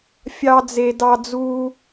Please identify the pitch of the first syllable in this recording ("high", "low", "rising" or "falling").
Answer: high